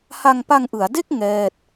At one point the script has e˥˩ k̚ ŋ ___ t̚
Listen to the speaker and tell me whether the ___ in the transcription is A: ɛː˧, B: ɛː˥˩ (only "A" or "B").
B